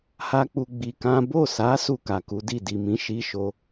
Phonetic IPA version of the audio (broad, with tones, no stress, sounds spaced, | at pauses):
h a˦ k͡p u˧ ɡ͡b i˧ k ã˦ b o˦˨ s a˨˦ s u˦˨ k a˨ k u˨˦ d i˦˨ d i˨ m ĩ˨˦ ʃ i˦ ʃ o˦